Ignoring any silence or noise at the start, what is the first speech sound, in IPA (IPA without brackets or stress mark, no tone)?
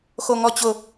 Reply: x